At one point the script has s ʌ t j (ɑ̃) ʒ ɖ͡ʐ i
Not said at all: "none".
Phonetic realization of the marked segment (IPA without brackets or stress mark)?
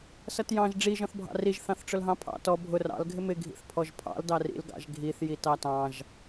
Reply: ɑ̃